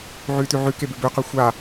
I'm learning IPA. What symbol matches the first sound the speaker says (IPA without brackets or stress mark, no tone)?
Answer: ʕ